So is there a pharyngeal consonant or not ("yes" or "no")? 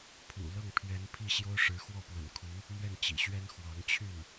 no